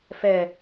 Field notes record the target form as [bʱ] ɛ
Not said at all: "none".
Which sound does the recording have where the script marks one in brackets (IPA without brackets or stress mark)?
f